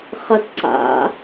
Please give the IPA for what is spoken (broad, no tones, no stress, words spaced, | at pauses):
χɐtǀa̰